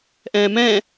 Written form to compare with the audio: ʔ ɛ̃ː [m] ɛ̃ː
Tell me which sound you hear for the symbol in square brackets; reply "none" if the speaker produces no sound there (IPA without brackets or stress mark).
m